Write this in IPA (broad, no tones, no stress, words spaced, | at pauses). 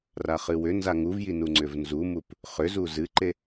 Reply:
raχɨwʏ nzaŋuvjinu ŋ͡ǀʏvnzumup | χʏzu zɨǃe